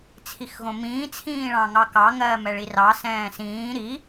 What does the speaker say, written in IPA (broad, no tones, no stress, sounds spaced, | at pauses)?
t͡sʰ i x ɣ õ m ĩː t͡sʰ ĩː ɭ ɑ̃ ŋ ɑ k ɑ ŋ ɜː m ɛ ɭ i r ɑ s ɛ̃ː s ĩː ɾ i